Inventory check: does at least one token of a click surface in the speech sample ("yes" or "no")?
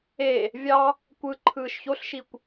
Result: yes